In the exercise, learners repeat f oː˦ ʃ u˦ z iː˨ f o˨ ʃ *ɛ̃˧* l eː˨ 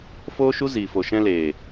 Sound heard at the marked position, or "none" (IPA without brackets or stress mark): ɛ̃˧